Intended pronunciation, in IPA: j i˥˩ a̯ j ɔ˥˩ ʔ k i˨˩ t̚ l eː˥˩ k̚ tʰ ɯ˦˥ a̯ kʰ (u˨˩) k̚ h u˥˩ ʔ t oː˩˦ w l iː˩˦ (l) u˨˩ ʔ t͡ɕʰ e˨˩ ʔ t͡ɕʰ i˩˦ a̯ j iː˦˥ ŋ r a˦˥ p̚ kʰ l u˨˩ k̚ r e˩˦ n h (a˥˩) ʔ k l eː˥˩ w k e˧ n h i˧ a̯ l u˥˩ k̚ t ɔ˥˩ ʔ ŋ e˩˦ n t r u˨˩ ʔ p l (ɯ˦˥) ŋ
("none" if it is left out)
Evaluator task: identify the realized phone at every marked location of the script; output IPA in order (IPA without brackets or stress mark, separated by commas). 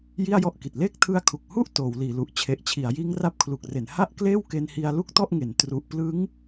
u˨˩, l, a˥˩, ɯ˦˥